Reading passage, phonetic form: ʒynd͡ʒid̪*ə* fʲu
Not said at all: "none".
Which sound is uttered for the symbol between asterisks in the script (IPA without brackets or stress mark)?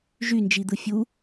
ɯ